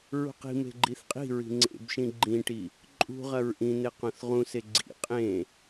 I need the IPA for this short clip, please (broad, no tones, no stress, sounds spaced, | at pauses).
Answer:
ɹ ṳ q i̤ m e̤ ɡ͡ǃ i θ qʼ i̤ ɹ i̤ ŋ͡ǀ ḛ b ʃ ĩ ɡ͡ǃ ĩ ʈ i | ǃʼ ṳ ʁ ɐ ɹ ʔ ĩ n̪ e q õ θ ʁ ũ s e ɡ͡ǀ ḭ qʼ ẽ